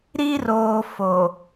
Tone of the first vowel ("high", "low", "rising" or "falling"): high